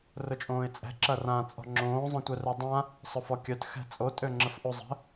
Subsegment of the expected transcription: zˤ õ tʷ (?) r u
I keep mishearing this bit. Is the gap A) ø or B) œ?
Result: B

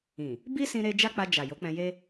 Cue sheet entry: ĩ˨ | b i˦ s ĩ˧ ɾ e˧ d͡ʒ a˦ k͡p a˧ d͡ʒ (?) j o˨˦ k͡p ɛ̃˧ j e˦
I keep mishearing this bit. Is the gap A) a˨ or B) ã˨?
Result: A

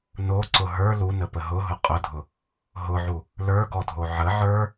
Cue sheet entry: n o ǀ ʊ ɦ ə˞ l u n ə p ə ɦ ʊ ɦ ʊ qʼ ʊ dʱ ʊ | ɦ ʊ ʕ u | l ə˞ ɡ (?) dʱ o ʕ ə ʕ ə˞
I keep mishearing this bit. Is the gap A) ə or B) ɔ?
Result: B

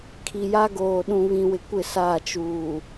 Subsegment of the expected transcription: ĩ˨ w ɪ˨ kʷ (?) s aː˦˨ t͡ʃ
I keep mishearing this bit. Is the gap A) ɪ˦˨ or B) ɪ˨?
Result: A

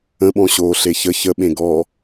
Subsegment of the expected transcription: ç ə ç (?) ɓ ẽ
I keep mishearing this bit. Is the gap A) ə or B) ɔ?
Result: A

